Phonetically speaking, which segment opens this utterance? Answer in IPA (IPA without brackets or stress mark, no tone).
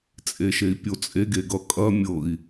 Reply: t͡sʼ